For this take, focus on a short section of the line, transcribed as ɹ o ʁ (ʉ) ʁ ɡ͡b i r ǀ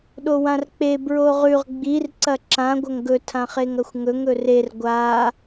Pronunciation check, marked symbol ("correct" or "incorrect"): correct